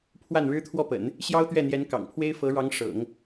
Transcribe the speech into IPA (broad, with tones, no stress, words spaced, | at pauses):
pʰwa˥˩nɻɻ̩˥t̪ʰwɔ˥˩pə̰˨˩˦n | ɕjɑ˥ʊ̯t̪ɥɛ˥˩n̪jɛ˧˥n kɑ̰˨˩ŋpʰwe˥ɪ̯ fɤ˧˥ɻɑ˧˥ŋ ʂɤ̰˨˩˦ŋ